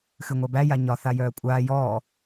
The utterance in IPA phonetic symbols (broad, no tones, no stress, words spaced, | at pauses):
xɨŋʷæbæ jaɲɒ θajœːkʷʼaː jɔː